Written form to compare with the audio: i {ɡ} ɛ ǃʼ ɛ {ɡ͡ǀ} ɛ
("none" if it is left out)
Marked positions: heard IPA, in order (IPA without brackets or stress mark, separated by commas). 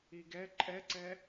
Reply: ɡ, ǀ